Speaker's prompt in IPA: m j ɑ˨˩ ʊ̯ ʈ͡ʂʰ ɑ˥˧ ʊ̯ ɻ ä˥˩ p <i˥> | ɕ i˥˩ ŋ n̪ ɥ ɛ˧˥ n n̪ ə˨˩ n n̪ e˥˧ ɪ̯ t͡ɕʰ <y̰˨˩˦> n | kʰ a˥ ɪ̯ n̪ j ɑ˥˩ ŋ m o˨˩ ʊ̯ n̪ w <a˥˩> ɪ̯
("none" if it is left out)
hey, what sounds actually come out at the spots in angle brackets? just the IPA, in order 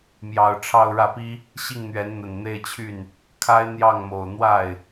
i˥, y˥˩, a˥˩

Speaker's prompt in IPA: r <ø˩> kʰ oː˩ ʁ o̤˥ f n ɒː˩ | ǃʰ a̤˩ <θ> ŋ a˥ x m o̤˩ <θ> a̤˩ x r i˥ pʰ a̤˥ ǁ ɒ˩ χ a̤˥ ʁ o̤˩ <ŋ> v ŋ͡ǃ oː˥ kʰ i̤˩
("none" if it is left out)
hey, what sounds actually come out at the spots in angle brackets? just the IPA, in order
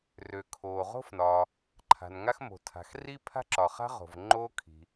ø˩, n, tʰ, none

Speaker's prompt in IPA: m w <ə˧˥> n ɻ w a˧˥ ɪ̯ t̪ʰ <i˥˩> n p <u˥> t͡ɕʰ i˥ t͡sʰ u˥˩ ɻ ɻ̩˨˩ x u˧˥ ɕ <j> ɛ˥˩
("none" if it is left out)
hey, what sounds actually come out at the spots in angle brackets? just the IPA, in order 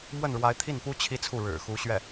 ə˥˩, i˥˩, u˥, ɥ

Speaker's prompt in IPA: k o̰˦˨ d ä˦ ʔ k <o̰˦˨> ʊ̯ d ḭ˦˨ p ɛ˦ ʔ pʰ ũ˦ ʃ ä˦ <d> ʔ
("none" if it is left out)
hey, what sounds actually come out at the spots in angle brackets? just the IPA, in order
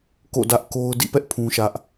o˦, none

